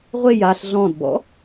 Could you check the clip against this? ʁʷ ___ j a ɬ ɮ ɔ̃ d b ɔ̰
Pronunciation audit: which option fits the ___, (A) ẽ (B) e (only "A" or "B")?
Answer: B